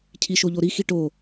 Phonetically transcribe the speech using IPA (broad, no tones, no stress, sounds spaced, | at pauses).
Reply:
cʰ i ʃ o ʎ o ɾ i x i ʈ o